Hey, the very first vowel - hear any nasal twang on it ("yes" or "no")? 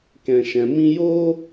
yes